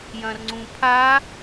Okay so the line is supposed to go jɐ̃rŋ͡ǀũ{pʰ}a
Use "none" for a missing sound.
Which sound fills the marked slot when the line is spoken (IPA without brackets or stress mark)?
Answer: pʰ